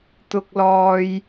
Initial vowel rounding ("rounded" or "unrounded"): rounded